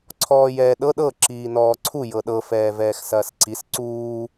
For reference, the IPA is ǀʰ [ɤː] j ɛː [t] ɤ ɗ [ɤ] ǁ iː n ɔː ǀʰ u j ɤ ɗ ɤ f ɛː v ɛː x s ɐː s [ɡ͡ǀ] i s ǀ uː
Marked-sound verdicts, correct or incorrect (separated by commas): incorrect, incorrect, correct, incorrect